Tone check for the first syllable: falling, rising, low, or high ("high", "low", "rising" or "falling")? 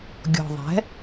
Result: low